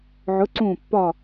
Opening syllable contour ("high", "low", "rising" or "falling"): rising